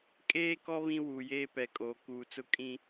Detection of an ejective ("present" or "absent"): present